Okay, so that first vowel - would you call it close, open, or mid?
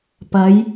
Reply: open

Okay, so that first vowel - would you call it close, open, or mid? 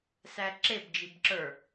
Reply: open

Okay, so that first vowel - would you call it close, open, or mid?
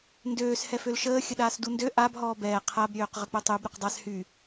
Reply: mid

